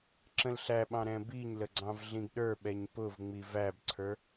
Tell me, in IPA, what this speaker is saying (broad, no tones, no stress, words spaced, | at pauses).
ǁə̃lɬæɓɑ̃ ɾɛ̃biɲlə ɡ͡ǀɑ̃vɮĩɡɗə˞ɓɛɲ pʊvŋ͡mi væbǀʰə˞